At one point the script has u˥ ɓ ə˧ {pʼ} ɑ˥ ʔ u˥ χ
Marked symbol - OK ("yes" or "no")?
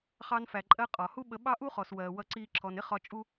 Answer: no